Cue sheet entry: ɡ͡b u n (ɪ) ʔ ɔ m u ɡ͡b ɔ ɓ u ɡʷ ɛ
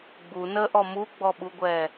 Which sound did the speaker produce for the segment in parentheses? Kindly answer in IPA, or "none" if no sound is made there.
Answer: ə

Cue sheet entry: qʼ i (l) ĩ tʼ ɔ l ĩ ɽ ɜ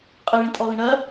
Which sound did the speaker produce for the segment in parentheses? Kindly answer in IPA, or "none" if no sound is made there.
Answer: ɭ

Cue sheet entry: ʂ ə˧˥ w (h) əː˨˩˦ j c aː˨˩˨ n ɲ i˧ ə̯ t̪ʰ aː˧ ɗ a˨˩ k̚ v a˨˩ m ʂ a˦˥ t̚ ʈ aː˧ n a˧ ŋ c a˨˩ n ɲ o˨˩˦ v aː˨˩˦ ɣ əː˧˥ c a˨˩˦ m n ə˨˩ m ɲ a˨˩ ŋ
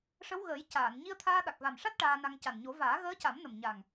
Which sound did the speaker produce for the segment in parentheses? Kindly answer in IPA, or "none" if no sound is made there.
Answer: ɣ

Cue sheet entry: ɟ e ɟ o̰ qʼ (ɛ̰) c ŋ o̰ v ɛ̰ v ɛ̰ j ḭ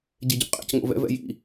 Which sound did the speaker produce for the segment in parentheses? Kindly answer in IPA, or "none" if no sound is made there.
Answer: ḛ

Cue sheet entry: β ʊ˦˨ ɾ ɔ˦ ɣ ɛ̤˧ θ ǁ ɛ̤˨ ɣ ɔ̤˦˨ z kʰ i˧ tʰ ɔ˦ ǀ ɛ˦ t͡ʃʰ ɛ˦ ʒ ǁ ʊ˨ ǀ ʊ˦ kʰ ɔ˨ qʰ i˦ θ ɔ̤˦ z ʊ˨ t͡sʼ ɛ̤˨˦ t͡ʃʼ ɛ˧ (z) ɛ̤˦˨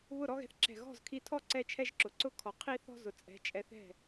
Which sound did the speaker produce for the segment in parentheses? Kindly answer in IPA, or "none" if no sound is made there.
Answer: θ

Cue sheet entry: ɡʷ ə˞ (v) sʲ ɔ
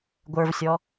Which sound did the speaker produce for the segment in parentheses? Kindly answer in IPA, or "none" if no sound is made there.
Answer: v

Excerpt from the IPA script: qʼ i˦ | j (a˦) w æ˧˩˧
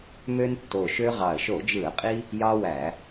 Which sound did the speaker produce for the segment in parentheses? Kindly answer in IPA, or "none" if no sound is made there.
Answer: ɑ˦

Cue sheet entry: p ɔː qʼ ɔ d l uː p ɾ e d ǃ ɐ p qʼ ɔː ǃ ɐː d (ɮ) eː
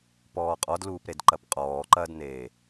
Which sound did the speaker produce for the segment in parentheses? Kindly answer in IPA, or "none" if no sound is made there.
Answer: n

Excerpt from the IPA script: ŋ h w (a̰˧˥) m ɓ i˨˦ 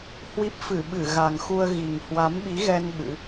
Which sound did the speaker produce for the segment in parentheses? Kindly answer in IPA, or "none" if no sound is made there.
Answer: a˨˦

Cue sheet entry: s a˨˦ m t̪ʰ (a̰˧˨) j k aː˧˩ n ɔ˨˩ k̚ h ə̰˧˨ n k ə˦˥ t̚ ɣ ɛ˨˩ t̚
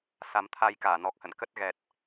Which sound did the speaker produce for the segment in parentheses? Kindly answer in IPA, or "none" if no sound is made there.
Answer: a˧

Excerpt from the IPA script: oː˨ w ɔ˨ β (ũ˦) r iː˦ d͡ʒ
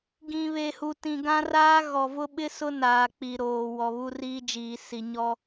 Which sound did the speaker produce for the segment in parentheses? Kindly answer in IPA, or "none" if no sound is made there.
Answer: u˦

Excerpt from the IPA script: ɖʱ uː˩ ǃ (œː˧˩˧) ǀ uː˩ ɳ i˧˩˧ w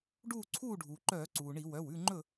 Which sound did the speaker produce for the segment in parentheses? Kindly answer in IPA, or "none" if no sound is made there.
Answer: œː˧˩˧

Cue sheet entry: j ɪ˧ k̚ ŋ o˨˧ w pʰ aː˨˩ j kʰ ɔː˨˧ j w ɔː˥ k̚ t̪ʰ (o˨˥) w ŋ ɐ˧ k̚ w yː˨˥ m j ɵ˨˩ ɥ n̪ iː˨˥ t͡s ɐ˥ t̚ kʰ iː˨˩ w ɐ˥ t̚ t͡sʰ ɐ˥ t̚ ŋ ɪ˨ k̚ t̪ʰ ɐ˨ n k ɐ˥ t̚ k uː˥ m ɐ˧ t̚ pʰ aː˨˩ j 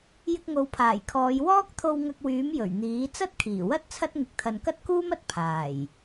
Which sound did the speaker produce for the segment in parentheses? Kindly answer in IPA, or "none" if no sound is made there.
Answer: o˧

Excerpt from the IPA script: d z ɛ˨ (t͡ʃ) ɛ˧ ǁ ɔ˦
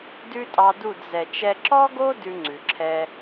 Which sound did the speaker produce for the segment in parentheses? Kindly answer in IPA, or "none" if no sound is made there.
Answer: t͡ʃ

